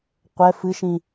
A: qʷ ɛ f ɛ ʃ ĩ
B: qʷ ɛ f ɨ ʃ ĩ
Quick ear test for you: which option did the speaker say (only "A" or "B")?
B